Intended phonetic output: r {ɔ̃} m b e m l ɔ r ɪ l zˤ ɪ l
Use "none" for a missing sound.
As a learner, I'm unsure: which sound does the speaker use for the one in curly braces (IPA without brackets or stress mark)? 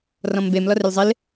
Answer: ɔ̃